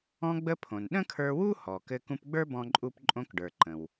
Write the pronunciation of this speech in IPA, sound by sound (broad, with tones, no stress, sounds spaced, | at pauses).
ɔ̃˧ ɡ͡b ə˧ pʰ õ˩ n ɗ ə̃˥ kʰ ə˞˧ w u˥ h ɔ˩ k ɘ˧ k ũ˧ p ɡ͡b ə˞˥ b ɔ̃˧ ǃʼ u˧ p ǃʼ õ˧ k ɖ ə˞˩ ǃ ə̃˩ w